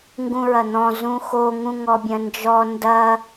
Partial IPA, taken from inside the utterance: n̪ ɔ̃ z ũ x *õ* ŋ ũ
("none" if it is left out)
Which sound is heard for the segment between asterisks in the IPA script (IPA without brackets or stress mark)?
o